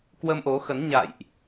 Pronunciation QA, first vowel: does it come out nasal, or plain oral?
oral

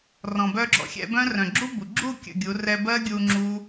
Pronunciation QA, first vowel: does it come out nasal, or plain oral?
nasal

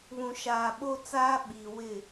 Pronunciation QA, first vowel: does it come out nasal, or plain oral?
nasal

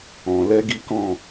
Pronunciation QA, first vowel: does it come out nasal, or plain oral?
nasal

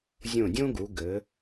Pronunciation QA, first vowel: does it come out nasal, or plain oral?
nasal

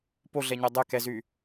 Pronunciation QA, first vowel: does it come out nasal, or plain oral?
oral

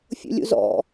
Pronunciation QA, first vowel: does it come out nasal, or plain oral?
oral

